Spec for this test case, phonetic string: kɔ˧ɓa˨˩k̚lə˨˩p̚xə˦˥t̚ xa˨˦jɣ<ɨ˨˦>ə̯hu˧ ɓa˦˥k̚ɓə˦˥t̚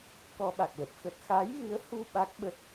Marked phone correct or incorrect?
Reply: correct